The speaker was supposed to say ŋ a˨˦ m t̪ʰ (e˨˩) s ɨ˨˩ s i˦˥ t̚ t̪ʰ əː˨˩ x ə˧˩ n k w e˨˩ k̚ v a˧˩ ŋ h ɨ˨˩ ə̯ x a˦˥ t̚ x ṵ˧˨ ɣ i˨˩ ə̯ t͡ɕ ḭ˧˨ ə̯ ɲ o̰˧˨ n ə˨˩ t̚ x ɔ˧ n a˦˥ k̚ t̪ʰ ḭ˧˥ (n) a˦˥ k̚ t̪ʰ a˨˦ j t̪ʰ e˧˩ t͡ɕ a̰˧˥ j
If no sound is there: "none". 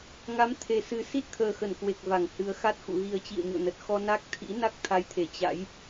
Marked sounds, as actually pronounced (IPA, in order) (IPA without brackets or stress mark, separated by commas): e˨˩, n